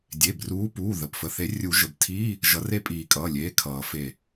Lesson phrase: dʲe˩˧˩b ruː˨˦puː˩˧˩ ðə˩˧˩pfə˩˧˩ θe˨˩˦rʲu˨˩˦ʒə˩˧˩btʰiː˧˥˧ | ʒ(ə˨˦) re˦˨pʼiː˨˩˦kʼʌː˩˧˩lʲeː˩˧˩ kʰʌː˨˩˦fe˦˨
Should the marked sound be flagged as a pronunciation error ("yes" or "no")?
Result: yes